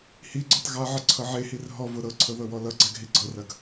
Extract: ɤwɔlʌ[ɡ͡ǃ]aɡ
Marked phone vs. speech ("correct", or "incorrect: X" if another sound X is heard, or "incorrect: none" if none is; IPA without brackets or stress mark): incorrect: ɡ͡ǀ